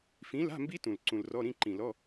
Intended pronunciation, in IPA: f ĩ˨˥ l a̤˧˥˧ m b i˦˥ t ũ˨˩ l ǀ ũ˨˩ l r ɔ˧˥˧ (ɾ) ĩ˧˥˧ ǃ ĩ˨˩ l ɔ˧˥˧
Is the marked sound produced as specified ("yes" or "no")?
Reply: yes